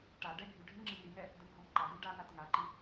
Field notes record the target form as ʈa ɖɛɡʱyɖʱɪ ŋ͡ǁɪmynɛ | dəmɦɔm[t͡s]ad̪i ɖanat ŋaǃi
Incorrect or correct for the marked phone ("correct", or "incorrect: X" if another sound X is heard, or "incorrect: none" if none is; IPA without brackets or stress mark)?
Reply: incorrect: ǃ